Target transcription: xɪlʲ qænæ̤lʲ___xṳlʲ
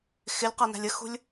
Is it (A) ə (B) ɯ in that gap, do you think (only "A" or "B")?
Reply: A